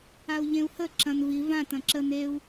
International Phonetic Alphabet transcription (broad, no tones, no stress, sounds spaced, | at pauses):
a u̯ ʎ ẽ u̯ h ə ǁ ɐ̃ n v i v ã t ɐ̃ ǁ ə n e u̯